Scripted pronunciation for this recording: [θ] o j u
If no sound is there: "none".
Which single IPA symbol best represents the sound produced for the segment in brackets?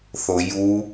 θ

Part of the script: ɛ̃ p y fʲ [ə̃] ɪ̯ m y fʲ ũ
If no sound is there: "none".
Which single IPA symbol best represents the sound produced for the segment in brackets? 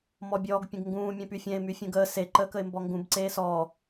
ɛ̃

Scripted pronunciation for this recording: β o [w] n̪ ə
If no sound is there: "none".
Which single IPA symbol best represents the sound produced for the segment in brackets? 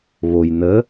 j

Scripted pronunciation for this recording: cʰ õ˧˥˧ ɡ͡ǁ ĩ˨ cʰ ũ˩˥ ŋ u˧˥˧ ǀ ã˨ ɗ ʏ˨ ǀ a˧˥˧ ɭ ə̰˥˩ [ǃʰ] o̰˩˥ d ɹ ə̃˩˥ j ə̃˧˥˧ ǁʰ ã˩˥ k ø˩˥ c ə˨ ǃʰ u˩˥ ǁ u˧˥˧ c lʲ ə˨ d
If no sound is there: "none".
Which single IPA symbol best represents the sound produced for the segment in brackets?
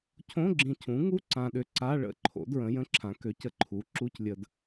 ǃʰ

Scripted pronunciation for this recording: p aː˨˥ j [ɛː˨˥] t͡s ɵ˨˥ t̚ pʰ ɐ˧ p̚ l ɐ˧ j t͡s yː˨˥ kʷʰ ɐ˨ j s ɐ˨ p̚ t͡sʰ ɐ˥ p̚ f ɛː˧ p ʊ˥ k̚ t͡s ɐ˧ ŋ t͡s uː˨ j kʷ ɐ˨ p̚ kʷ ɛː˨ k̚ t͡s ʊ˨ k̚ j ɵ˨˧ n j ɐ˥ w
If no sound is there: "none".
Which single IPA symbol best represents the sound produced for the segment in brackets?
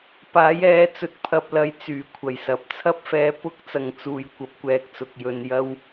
ɛː˨˥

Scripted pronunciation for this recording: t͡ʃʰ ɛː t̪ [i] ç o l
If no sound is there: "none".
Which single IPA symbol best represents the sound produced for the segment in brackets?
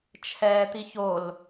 i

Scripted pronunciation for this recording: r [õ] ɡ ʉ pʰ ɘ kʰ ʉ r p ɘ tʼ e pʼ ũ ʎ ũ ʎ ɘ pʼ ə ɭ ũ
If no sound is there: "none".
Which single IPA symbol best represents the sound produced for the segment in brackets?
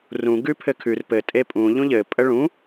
ũ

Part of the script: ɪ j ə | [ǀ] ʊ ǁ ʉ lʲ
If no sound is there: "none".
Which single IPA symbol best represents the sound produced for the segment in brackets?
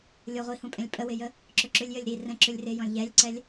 ǁ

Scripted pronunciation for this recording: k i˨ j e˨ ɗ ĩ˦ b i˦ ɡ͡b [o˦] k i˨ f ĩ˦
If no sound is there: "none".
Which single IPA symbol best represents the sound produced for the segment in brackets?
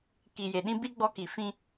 ɔ˦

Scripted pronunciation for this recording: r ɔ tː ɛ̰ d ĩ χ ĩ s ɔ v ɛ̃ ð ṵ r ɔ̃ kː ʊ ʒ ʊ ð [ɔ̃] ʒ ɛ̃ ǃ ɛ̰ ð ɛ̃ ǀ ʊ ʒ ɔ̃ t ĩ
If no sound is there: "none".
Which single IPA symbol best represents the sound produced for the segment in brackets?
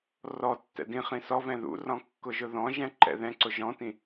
ɔ̃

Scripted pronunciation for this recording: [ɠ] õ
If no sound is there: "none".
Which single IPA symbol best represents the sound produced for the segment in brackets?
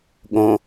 ɠ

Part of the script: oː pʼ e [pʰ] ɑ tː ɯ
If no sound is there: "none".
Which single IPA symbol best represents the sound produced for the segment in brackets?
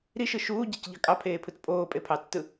pʰ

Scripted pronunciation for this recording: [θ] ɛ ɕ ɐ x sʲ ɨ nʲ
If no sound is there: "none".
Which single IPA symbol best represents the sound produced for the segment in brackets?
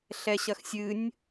ɬ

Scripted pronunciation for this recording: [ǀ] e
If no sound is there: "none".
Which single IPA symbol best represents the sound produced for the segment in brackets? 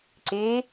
ǀ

